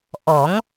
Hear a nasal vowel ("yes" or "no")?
no